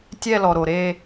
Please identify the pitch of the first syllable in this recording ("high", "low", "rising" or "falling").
falling